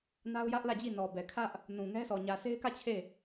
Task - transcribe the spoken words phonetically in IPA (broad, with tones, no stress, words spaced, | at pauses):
na˦ʊ̯jä˦ʔlä˦˨d͡ʑi˦˨ nɔ˨bɛ˨kʰä˦ʔ | nũ˨ŋɛ˦sɔ˨ ɲä˨se˦ɪ̯kä˦˨ t͡ɕʰe˦˨